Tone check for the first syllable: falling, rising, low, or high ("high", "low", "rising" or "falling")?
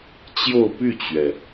falling